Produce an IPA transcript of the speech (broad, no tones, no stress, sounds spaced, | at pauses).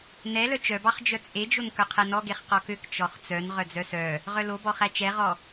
n ɛ l œ t͡ʃ œ b ɑ χ d͡ʒ œ t͡sʼ e d͡ʒ o n k œ qʰ ɛ n ɔ ɡ e χ q ɔ k ø k t͡ʃ ɔ χ t͡s œ n ʁ œ d͡z œ s œ | ʁ œ l o b ɔ χ æ t͡ʃ ɛ ʁ ɔ